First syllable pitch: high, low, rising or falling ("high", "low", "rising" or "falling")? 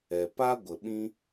low